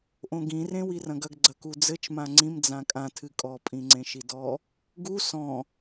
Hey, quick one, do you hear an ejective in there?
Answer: yes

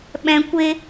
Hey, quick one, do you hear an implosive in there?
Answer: yes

